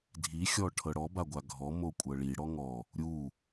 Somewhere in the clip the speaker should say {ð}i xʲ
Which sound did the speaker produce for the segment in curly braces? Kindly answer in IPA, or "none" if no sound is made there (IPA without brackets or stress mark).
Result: dʱ